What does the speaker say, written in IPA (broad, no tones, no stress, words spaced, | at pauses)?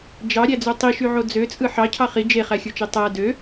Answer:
d͡ʒɑɾʲæd͡zø tˤiʃyʕo d͡zøt͡sʼɯ ħɑcʰɑ χi d͡ʒeχæxʲot͡ʃe tˤæ dø